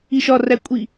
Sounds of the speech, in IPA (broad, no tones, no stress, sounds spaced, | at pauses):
i ʃ ɒ r æ kʷʼ i